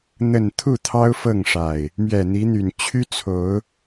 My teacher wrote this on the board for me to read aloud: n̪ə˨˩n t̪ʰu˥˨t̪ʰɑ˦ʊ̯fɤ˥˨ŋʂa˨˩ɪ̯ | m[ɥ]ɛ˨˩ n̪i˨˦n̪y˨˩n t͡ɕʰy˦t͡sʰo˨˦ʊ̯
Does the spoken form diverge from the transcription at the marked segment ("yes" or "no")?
no